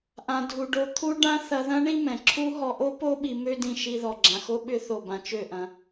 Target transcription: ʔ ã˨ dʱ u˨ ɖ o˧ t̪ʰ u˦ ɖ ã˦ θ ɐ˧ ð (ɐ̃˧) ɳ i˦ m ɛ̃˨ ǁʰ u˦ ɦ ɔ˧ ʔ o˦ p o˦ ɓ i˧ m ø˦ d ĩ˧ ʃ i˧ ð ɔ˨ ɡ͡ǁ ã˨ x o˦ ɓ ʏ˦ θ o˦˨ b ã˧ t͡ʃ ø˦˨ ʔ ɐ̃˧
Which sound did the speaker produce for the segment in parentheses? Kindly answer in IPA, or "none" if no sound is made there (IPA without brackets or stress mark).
ɐ̃˦